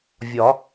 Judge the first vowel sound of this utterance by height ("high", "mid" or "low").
low